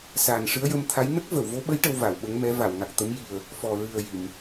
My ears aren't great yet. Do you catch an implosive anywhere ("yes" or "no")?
yes